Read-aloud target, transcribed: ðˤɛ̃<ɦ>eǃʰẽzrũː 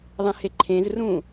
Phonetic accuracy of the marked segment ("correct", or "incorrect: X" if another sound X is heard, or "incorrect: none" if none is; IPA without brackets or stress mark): incorrect: h